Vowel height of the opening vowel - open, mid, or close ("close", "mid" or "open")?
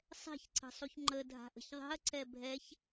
mid